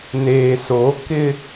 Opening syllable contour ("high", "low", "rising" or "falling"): low